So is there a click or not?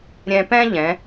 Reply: no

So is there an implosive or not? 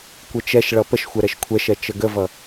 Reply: no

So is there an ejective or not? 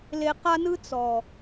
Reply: no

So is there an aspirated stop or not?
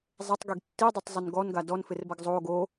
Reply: no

